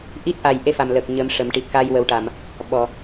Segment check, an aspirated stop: absent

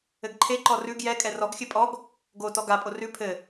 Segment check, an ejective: present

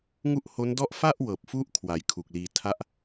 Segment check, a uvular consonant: absent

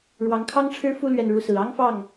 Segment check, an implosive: absent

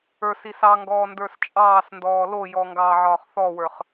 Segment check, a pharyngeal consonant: present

